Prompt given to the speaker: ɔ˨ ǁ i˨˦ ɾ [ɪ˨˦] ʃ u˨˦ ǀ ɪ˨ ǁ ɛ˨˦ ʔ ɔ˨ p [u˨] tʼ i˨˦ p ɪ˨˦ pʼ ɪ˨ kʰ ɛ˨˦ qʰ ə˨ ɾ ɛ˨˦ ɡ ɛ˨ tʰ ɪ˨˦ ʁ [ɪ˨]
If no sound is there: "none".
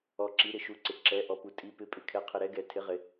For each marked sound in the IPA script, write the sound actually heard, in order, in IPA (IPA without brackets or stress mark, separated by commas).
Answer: ɪ˨, u˨, ɪ˨